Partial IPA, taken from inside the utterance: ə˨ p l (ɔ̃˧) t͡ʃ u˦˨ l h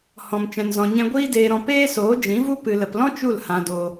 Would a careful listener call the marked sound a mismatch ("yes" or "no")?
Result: yes